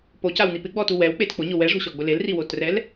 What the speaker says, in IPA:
p o c a w n i p ɪ ɡ͡b ɔ t u w ɛ w k͡p e t k͡p ʊ ɲ ʊ w ɛ ʐ o̤ ɕ ɔ ɡ͡b ʊ l e l r i w o t r ɛ l

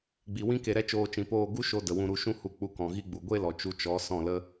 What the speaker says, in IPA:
ɡ͡b i˨ w ĩ˦ k e˧ ɾ ɛ˦ t͡ʃ oː˧ t͡ʃ ĩ˨ p oː˦˨ ɡ u˦ ʃ o˧ d ə˨ w ũ˧ ɾ u˧ ʃ ũ˦ h u˧ k͡p u˧ k ɔ̃˨ ɣ i˦ ɡ͡b u˨ ɡʷ e˦ l ɔ˨ t͡ʃ u˧ t͡ʃ ɔ˨˦ s ɔ̃˦˨ l ə˦

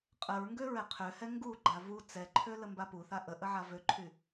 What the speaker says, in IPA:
qʼ ə ɹ ŋ ɡ ø ɹ ɛ qʰ ø h ɛ ŋ ɡ u ɡ͡ǃ a v u t͡s ɛ ǃʰ ø l ə m b a p u θ a ʔ ə ʔ ə ʕ a v ø ǃʰ y

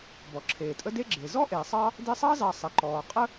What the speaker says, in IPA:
b ɔ˩ ǁʰ eː˩ tʼ ə˦ d e˥ ɡ͡ǁ e˩ z ɔ˥ ʔ e˩ sˤ ɑ˦ | d e˦ sˤ ɑ˥ z ɑ˨ sˤ ə˩ ǃ ɔː˩ qʼ ə˦

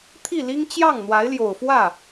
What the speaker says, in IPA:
t̪ʰ i˥˩ l i˥ ŋ t͡ɕ j ɑ˥˩ ŋ n̪ w a˧˥ ɪ̯ l j o˨˩ ʊ̯ f w ä˥˩

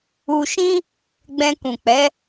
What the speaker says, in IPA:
u˧ ʃ ĩ˦ | ɡ͡b ɛ̃˧ k ũ˨ k͡p ɛ˨˦

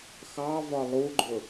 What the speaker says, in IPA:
x ɑ v ɒ lˠ u ɡ͡ǃ ʊ

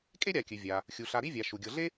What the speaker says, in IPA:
kʼ e˥ ɾʲ a˨ kʲ ɨ˩ vʲ a˩ | xʲ u˩ ɬ a˨ ɾ i˥ vʲ a˩ ʃ u˩ ɡʲ ɤ˨ ɮ e˥

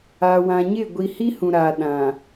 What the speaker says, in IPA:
a˨ w ã˨ ɲ ɪ˦˨ ɡʷ i˨ h i˦ h ũ˨ ɾ a˨ ɗ ã˨

